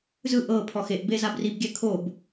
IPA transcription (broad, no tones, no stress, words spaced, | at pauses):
zɯ ʔɤ pʰɔxeʔ bezabrib ɡʲɛkʰob